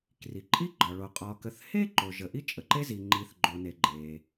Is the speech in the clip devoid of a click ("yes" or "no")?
no